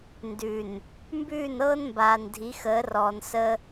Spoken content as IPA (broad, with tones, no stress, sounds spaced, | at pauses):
n d ʉ˨ n | m b ʉː˦˨ n ɤː˦ n m b aː˨ n dʱ i˨˦ x əː˨˦ r ɔː˨ n s ə˦